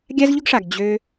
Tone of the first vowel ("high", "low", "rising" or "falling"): high